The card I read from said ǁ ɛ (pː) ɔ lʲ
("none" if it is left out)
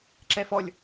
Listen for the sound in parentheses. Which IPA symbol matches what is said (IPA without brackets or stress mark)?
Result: f